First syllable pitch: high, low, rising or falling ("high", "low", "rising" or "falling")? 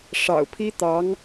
low